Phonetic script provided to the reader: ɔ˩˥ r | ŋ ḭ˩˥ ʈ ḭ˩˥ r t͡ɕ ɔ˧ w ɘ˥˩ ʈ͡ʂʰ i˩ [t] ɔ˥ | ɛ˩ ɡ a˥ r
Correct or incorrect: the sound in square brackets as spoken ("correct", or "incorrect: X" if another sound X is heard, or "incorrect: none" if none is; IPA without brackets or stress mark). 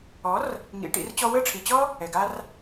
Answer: incorrect: t͡ɕ